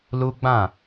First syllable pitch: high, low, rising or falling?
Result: high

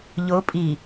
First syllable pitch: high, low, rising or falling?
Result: rising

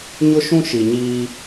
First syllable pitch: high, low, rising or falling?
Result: high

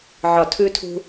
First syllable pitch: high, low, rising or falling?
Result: low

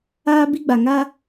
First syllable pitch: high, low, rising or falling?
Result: high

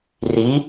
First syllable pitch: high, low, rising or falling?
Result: rising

